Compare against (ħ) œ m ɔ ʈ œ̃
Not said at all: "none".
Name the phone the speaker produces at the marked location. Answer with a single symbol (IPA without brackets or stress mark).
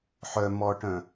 ħ